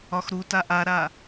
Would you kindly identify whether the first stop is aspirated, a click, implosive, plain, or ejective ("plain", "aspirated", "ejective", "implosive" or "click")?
plain